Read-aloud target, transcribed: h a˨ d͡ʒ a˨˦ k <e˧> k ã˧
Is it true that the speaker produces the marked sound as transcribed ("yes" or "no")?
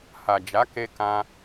yes